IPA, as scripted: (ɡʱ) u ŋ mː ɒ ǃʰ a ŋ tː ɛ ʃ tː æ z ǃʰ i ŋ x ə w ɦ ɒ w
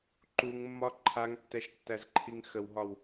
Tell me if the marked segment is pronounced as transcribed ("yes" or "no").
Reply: no